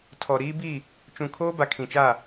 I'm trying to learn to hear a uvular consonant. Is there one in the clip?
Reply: no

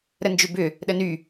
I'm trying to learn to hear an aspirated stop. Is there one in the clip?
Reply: no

